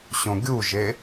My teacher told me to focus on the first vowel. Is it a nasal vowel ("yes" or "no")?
yes